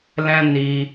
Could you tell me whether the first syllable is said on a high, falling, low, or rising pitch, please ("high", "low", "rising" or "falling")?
high